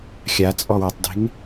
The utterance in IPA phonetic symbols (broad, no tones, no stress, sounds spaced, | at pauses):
xʲ a t͡sʼ ɔ w ɯ tˤ d e̤ ŋ